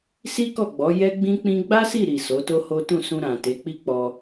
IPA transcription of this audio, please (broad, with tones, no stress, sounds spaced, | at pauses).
s i˦ k ɔ˦˨ ɡ͡b ɔ˨˦ j ɛ˦ ɡ͡b ĩ˦ k͡p ĩ˦ ɡ͡b a˦ s i˦˨ ɾ i˨ s o˨˦ t o˦ h o˦ t ũ˦˨ s ũ˧ ɾ ã˨ t e˨˦ k͡p i˦ k͡p ɔ˧